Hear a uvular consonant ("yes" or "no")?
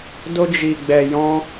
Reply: no